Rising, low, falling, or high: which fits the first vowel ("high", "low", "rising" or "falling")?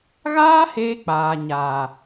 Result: high